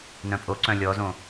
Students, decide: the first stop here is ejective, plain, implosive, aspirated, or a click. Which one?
ejective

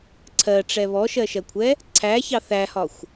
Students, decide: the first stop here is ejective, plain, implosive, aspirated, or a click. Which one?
click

